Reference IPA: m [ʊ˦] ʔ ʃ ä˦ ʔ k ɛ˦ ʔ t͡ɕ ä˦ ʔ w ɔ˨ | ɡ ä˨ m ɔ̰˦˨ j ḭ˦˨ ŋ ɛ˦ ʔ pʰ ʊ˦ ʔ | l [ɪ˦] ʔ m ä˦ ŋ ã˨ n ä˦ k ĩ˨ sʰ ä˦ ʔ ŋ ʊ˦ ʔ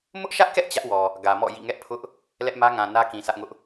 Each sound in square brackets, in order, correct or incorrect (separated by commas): correct, incorrect